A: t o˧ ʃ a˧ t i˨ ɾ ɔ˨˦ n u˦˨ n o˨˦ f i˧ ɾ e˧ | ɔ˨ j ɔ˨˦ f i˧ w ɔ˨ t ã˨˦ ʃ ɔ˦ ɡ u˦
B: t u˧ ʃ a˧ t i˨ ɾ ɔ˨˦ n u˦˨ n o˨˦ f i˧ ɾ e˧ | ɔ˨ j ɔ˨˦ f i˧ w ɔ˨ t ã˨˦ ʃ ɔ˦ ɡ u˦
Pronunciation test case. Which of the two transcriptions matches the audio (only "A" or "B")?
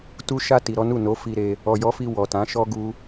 B